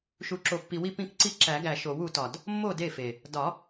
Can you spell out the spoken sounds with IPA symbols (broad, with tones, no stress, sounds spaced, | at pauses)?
ʃ u˨˩ ǁ o˨˩ pː i˨˩ w i˥˩ p ĩ˥˩ k ǀ i˥˩ ǁ æ˨˩˦ ɡ æ˨˩ ʃ o˨˩˦ w u˨˩˦ t ɒ˨˩ d | mː o˥˩ d e˥˩ f e˨˩ | d ɒ˨˩˦